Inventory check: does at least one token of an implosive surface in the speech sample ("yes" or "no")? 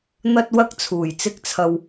no